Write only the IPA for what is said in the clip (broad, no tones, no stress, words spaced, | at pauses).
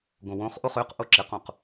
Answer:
ɡõwõχʔoχ øqʔo ǁɪqõq